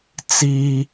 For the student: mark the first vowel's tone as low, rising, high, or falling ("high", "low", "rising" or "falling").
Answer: high